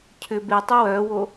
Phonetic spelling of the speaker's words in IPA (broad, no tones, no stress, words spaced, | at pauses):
cʰʏ be tˤøwœːwo